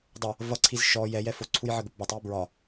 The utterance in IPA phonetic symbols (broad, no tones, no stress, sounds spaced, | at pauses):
dˤ ə | v ʌ ǀʰ i z ʃ ɔ j ɛ j ɛ f ʊ ǀʰ u j ʕ ə ɡ ʊ p b ɒ tˤ j i b ɹ ɒ